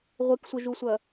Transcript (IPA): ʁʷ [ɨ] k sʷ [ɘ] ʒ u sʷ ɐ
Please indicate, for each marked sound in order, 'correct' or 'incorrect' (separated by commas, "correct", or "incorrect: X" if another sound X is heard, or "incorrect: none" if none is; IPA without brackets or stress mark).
correct, correct